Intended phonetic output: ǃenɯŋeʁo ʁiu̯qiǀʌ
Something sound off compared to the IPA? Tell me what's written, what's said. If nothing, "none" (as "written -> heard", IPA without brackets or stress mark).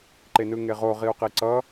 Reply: none